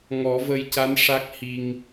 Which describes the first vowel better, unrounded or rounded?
rounded